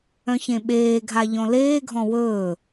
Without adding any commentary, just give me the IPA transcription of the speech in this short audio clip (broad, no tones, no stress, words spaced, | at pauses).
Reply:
œ̃çẽɓeːɡʱa ʎɔ̃leːɡʱɔ̃ wɵː